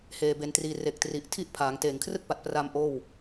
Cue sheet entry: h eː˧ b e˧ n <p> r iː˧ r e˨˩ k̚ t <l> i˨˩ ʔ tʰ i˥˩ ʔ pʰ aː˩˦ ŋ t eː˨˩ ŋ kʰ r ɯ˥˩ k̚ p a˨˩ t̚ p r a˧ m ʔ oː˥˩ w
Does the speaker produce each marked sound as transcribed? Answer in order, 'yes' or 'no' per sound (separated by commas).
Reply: no, no